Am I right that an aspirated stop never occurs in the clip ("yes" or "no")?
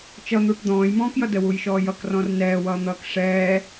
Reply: yes